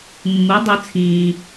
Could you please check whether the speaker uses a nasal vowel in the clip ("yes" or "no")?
yes